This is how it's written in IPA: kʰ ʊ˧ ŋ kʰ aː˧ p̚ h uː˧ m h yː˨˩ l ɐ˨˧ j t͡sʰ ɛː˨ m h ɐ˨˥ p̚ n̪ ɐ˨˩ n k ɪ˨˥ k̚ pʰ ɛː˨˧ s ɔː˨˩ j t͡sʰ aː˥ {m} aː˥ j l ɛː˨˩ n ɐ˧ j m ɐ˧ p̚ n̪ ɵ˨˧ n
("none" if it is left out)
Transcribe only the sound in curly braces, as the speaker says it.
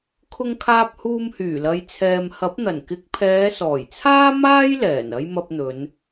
m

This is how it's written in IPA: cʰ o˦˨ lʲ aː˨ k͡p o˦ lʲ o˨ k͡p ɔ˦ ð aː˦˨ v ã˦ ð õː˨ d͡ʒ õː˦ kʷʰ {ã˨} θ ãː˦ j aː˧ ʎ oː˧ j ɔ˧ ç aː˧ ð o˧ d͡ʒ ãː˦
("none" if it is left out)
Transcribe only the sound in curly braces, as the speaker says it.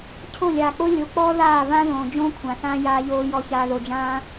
ã˨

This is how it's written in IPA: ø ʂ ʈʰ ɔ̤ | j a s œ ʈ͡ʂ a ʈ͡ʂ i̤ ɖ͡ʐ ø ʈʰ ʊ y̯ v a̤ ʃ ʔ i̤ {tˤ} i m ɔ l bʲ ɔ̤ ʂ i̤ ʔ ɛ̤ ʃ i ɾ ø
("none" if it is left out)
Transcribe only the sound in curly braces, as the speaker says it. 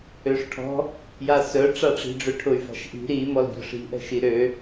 ɾ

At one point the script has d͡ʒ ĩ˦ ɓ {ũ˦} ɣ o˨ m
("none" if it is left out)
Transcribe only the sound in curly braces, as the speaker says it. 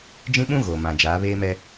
ũ˦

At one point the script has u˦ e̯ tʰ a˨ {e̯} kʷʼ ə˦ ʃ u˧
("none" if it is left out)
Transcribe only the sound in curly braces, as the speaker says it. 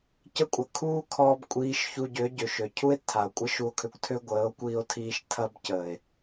o̯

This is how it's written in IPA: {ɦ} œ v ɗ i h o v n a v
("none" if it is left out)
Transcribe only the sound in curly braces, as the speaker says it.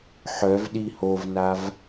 ħ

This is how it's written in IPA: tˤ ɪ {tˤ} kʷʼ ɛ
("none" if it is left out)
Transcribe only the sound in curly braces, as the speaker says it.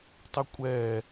none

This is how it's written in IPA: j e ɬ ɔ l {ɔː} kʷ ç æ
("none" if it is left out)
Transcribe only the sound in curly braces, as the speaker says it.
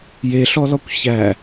ɔ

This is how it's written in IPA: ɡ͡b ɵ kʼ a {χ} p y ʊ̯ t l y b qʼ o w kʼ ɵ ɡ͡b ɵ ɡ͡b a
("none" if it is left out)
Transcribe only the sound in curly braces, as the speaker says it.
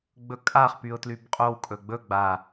χ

